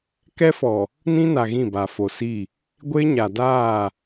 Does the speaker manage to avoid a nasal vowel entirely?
no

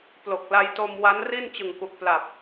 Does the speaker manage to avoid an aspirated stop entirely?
yes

